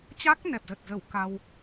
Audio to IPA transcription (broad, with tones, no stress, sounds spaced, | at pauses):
t͡ɕ a˦˥ k̚ n ɛ˨˩ p̚ z ə˨˩ t̚ z ə˧˩ w k a˧ w